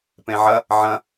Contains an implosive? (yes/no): no